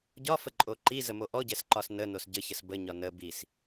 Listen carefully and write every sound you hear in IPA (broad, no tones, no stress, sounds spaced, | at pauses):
ɟ ɒ f ə ǃʼ o ǃ i z ə m o ʔ ɔ ɟ ɛ s ǃ ɒ s n ə n o s ɟ ə ç ə s b ə ɲ ɒ n ə b i s